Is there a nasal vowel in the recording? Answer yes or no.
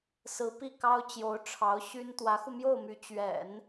no